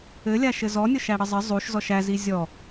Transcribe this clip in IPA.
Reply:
ɘlʲaʃɘ zɔnʲɔʃæɽə zˤə zˤuʃzɔʃ æzi zʲɔ

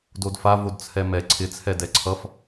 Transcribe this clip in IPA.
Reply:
dodfa vodt͡sʰɛmɛ ǀʰɪ t͡sʰɛdɛǀʰʌf

